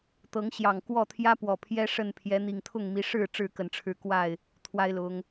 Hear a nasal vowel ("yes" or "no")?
no